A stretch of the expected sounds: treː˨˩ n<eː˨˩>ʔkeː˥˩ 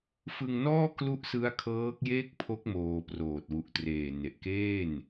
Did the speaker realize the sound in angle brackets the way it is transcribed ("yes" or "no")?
no